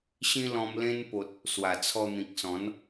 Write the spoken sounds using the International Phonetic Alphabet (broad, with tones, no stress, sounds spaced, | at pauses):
ɕ ĩ˦ l ɔ̃˧ m l ẽ˧ n p o˨ t̚ | s w a˨˩ t͡sʰ ɔ˧ n̪ ĩ˨ k̚ s ɔ̃˨˦ n